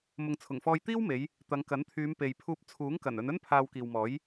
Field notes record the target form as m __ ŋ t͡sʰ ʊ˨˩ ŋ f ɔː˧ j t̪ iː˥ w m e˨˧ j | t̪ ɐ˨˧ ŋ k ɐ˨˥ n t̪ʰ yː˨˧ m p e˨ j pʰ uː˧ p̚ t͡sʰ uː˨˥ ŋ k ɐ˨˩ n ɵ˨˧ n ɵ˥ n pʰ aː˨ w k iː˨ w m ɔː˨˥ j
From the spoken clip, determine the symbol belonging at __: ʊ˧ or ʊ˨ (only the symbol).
ʊ˨